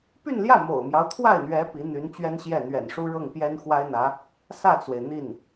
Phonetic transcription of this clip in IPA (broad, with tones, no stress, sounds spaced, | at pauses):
p y˥˧ n l j ä˥˩ m o̰˨˩ ʊ̯ m j ɑ˦ ʊ̯ t̪ʰ w a˥˩ ɪ̯ n̪ ɥ ɛ˧˥ p i˧˥ n̪ y˧˥ n t͡ɕ ɥ ɛ˥ n ɕ j ɛ˥˩ n̪ ɥ ɛ̰˨˩ n ʂ u˥ ɻ ɤ˥˩ ŋ p j ɛ˥ n x w a˥ ɪ̯ n̪ ä˧˥ | s ä˥˩ t͡s w e˩ ɪ̯ n̪ i˥˩ n